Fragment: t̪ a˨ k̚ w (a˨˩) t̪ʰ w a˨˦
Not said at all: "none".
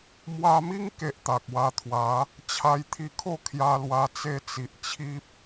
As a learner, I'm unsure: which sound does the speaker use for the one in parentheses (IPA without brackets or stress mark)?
a˧